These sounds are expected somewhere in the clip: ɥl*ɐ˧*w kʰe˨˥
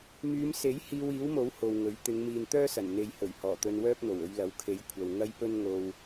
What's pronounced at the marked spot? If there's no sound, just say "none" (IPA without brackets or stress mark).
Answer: ɐ˨˥